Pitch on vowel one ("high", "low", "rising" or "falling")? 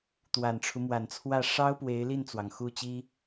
low